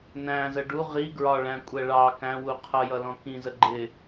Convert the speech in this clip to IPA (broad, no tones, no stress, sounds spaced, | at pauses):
n æ̃ z ə ɖ u ʁ i ɡ ɹ ɒ ɭ æ̃ kʷʼ ɛ ɭ ɑ k æ̃ w u qʰ ʌ j ʌ l ɔ̃ k ĩ z ə ɡ͡ǃ ɪ